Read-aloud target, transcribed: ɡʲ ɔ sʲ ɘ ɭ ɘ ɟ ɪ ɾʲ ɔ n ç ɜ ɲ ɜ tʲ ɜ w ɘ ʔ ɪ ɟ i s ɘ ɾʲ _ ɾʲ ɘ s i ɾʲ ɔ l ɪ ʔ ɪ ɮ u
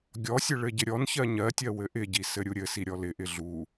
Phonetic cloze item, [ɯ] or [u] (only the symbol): u